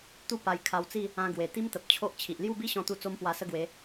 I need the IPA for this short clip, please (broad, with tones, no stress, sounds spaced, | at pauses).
t̪ u˥˧ p a˧ j kʰ a˧ w t͡s i˥˧ | ã˧ ɡ w e˨˩ t̪ i˦ m t̪ ə˨ p̚ t͡ɕʰ o˦ ʔ t͡ɕʰ i˨ ʔ l j u˥˧ b i˦ ɕ ɔ̃˧ t̪ u˧ t͡s o˦ m p w a˧ s ə˦ ɡ w e˨˦